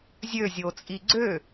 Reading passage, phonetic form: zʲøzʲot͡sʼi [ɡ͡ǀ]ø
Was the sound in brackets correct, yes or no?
yes